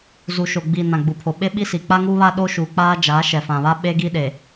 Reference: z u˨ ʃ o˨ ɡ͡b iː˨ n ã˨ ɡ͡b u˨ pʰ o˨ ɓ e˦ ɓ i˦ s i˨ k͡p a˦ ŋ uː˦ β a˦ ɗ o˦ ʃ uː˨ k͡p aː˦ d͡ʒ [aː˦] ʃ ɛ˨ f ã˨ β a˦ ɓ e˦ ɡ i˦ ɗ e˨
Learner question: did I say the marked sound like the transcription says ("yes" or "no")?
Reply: no